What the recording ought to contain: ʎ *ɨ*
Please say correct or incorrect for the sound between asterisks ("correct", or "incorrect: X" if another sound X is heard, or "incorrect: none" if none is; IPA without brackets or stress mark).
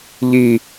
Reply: incorrect: i